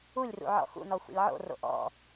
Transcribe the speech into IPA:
u lʲ r ṵ ʕ ɔ̰ x ṵ n ɔ xʷ ɛ̰ lʲ ʕ o̰ r o̰ ʔ ɔ̰

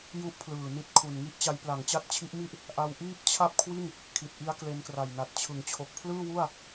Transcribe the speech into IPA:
j u˥˩ ʔ pʰ l ɯː˨˩ n i˦˥ t̚ kʰ u˨˩ n ŋ i˥˩ ʔ t͡ɕ a˦˥ j p l a˩˦ ŋ t͡ɕ a˦˥ t̚ t͡ɕʰ i˦˥ ʔ m i˥˩ ʔ | ʔ a˧ w ʔ iː˥˩ p̚ t͡ɕʰ a˥˩ p̚ kʰ w i˥˩ n | kʰ i˨˩ t̚ ʔ i˦˥ a̯ k l e˧ n k r a˨˩ j n a˨˩ t̚ t͡ɕʰ ɯ˩˦ ŋ t͡ɕʰ o˨˩ k̚ pʰ l ɯː˥˩ w u˥˩ a̯

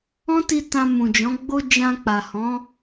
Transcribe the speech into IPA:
ɔ̃˦ t i˧ t ã˧ m ũ˨ d͡ʒ ɔ̃˨˦ ɡ͡b o˦ d͡ʒ ã˧ k͡p a˨ h ɔ̃˨˦

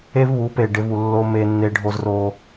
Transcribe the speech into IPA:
e˦ v β u˨˦ p e˨ ɖ e˦ v u˨ lː o˦ m e˦ nː e˦ ɖʱ o˦ z r o˦

